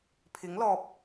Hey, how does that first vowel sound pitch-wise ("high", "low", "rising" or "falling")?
rising